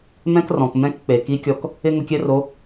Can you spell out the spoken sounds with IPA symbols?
mɛ̃˥krɔ̃˩kmɛ̃˧˥k k͡pe˩ ki˧˥kʲɔ˧k | ɪ˥ ŋʊ˧kʲɛ˥ro˧˥

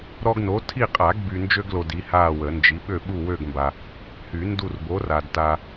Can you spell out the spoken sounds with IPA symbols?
ɾɔ˦ɡno˨˥ tʰi˦˨qʼa˨˩˦ɡby˨ nd͡ʒø˦ɡlo˨ di˨˥haː˦˨wə˨˩˦nd͡ʒi˨˥ ɓø˦˨ ɓu˦˨wø˦˨ɡmba˨ | hy˨˩˦ndu˦˨rbo˨˥raː˨d ta˨

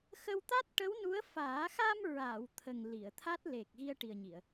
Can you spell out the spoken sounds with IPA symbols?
xə˧wt̪a˦˥t̚ʈə˧˥w nu˧˥ə̯faː˨˩˦ xa˧m ɹa˨˩˨w t̪ʰə˨˩ŋ li˨˩˨ə̯t̪ʰa˦˥t̚ le˨˩k̚ɣi˧ə̯ ʈi˨˩ə̯ɲi˨˩˨ə̯

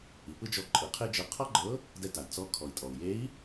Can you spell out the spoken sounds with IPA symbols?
i˩˧pɯ˥d͡ʒɔ˧ ǃʼɯ˩˧qʰe˥d͡ʒɤ˧ qʰɔ˥ɡ͡ǃɤ˧˥ | dɛ˧ ta˩d t͡sɔ˧˥ kʰɔ˩i̯tʼɔ˩u̯je˧˥i̯

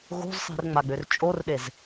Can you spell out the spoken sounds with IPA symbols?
ɣo̤zsˤi̤rŋ͡maɡ͡bør t͡ʃʼorɗez

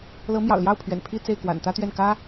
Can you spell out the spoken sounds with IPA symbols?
lɤ˧˥mjɑ̰˨˩ʊ̯ljɑ˥˩ʊ̯pʰɥɛ̰˨˩n pʰi˥˧ t͡se˥˩ɪ̯kwa̰˨˩nt̪ä˥t̪ɥɛ˥˩n kä˥

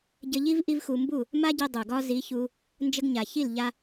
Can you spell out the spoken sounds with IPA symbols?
ɟə˧ʎi˦v ʔi˦vxu˧ mbu˦˨ | ma˦ɟi˧ dˤu˨ɡɒ˦ zi˨˦ çu˧ | nd͡ʒə˧ɡɲa˨çi˦˨l ʎa˦

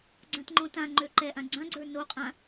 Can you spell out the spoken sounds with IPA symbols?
ɡ͡ǀãtŋ͡ǃõtãŋ͡ǃø ǃɛʔã ɡ͡ǀãɡ͡ǀə˞ noqʼã

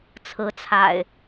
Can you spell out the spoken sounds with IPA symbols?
t͡sʰɹ̩˨˦t͡sʰa̰˨˩ɪ̯

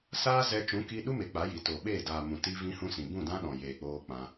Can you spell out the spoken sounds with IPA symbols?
saː˦zɛ˧ t͡ʃũ˨˦ki˧ɗu˦me˨ k͡pa˨˦ji˨to˨ ɓeː˦˨ daː˨ mũ˨ti˧ vĩ˧ hũ˦sĩ˨ bũ˦˨dã˦ɗɔ̃˨ jeː˨k͡poː˧ k͡pã˧

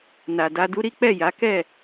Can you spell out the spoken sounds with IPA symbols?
na˨da˧du˦ ɾi˦k͡pɛ˦˨ja˨˦ kɛ˦˨

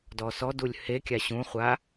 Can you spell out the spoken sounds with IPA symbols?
dɔsɔdulʲ hekʲa ɕũχʷa

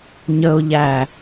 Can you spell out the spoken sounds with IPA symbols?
ɲəʊ̯ʎæ

